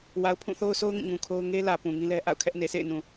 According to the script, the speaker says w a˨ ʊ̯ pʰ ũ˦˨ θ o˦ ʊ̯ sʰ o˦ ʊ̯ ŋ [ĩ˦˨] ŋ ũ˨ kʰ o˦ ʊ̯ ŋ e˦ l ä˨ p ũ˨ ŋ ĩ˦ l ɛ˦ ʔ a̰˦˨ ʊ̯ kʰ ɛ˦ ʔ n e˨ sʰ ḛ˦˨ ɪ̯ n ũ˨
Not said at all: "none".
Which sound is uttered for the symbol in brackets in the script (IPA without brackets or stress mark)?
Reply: ĩ˦˨